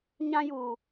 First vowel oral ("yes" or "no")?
no